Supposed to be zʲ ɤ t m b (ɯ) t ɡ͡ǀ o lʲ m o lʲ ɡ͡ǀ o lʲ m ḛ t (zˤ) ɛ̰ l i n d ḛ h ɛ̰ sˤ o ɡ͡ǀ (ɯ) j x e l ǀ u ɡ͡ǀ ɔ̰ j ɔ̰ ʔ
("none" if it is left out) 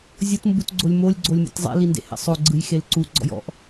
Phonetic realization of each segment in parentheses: u, zˤ, ɯ

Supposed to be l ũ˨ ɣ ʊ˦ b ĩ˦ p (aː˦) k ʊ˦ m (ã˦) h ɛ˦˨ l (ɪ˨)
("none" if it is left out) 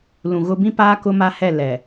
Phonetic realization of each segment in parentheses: aː˦, a˦, ɛ˨

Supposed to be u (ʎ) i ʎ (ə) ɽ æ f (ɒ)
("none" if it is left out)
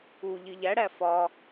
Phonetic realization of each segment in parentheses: ʎ, æ, ɒ

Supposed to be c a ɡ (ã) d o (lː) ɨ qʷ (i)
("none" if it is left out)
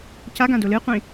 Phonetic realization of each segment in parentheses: ã, l, ĩ

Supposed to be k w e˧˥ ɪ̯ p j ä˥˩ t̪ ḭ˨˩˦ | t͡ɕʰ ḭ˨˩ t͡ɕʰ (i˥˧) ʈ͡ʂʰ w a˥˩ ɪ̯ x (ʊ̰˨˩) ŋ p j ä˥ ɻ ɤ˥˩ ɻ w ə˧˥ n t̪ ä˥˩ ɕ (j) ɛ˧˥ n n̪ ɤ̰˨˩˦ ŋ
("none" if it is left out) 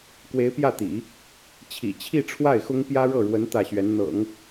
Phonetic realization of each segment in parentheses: i˥˧, ʊ˥, ɥ

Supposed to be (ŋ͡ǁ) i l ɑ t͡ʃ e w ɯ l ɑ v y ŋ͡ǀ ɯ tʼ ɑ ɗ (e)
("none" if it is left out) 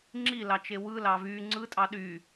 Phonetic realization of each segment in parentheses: ŋ͡ǁ, y

